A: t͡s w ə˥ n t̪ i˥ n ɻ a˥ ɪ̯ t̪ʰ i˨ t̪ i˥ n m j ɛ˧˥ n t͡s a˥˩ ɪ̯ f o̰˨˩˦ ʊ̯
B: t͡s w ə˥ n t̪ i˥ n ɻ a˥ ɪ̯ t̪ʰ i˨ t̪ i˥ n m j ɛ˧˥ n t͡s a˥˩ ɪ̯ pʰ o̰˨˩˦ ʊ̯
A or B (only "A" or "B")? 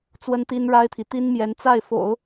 A